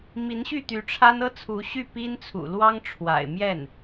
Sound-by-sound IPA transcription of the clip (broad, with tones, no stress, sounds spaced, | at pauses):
m i˧˥ n ɕ y˥˩ t̪ y˧˥ ʈ͡ʂʰ a˥ n ɤ˥ t͡sʰ u˧˥ ɕ y˥˩ p i˥ n t͡sʰ ṵ˨˩ l w ɑ˥ ŋ ʈ͡ʂʰ w a̰˨˩ ɪ̯ m j ɛ˥˩ n